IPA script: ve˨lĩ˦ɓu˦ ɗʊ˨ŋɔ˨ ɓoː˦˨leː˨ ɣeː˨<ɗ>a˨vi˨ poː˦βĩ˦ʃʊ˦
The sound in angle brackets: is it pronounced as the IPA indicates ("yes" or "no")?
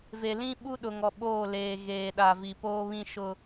yes